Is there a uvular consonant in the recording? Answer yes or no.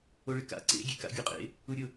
yes